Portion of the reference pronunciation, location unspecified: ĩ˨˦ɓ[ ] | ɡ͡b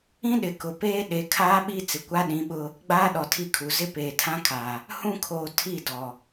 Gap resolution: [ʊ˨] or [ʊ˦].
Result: ʊ˦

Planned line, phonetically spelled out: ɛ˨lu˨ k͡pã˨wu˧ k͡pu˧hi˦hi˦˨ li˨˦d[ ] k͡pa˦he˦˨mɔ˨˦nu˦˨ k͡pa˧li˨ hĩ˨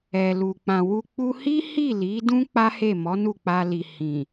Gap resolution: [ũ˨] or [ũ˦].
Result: ũ˦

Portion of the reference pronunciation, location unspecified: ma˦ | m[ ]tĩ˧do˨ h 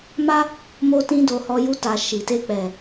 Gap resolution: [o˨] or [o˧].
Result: o˧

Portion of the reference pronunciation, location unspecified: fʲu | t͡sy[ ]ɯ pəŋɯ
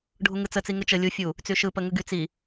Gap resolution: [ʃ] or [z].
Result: ʃ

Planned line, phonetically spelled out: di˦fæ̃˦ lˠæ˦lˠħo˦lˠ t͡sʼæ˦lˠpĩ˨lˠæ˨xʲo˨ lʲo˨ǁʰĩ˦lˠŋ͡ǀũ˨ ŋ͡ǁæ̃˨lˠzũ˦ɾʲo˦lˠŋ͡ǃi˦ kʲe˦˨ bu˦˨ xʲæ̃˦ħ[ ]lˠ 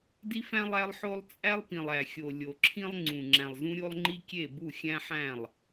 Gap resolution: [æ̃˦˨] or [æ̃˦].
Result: æ̃˦˨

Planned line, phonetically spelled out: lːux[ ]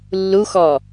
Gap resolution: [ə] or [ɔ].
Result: ɔ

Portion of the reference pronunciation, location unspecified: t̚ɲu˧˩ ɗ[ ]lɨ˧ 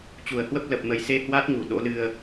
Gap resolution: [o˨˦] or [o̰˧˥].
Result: o̰˧˥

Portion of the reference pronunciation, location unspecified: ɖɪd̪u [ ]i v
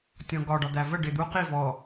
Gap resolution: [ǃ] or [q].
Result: q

